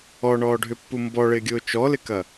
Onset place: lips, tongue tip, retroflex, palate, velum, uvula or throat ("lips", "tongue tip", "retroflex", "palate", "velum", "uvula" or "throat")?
retroflex